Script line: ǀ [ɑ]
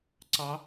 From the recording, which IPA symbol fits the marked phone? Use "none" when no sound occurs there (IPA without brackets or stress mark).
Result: ɑ